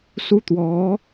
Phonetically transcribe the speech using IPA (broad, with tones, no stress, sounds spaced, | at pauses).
s u˥ t̪ w ɔ˧˥